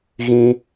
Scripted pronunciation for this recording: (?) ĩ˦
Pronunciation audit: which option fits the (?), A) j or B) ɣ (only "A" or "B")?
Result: B